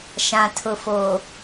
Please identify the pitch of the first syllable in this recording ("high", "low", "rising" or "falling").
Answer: low